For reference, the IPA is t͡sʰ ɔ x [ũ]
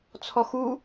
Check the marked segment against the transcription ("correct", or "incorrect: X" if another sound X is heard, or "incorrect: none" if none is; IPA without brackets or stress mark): incorrect: u